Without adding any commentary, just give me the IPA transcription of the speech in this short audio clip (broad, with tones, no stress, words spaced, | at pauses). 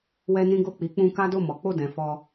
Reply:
wɛ˦nĩ˦ɡo˦˨ k͡pi˨˦k͡pũ˧ ka˦do˦˨mɔ˨˦k͡po˦˨ dɛ̃˨fɔ˧